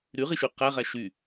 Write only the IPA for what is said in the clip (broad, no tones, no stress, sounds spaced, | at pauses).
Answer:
ɾ y ʁ i ʃ y q æ ʁ æ ʃ y